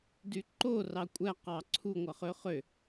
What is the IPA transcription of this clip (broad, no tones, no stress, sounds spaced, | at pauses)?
d y ǃ o r ɑ kʷʼ æ q ɑ ǀʰ u ŋʷ ɑ χ ø χ ø